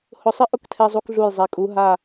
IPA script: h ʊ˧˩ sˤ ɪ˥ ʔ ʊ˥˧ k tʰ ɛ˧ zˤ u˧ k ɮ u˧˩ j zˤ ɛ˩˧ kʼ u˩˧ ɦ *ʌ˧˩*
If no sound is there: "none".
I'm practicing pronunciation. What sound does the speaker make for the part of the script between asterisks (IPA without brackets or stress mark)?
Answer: a˧˩